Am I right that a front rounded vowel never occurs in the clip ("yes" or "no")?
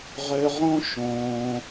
no